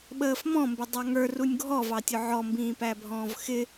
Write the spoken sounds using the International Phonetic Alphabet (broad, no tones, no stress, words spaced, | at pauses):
ɓəːfmɔ̃mbɪ dˤɑŋə˞runʲ ɡʱɔvɑtʲʊ ʕɔmbĩːpæbʱɔ̃ːv xɪ